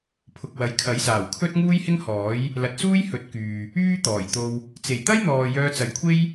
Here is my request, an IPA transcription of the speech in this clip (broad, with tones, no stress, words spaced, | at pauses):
pʰʊ˨k̚wɐ˨˧jkʰɐ˨˥jsaː˨˩w kʰɵ˥t̚ ŋuː˥jhɪ˥ŋhɔː˨˥j | lɐ˨˥t̚suː˥jhɵ˨˥t̚kyː˨ | yː˥t̪ɔː˨˩jt̪o˧w | t͡se˨˩jt̪ɐ˥jn̪ɔː˨ jœː˧t͡sɐ˨˥jkʷʰe˥j